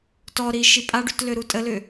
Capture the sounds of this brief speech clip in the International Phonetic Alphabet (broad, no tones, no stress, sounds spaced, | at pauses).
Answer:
t ɔ ɾ i ʃ i pʼ a ɖ y t l ø ɾ u tʼ ə l ʏ